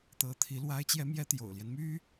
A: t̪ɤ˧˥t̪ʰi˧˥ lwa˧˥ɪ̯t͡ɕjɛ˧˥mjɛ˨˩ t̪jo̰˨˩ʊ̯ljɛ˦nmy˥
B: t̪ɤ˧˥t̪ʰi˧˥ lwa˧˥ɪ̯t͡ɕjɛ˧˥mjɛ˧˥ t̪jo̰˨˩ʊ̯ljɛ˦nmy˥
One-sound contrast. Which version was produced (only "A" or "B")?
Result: B